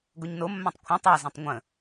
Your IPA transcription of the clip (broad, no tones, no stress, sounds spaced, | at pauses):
ɡ o ɲ n o mː ã tˤ kʷʰ ɐ̃ tˤ a z ɐ̃ tˤ ŋʷ ə̃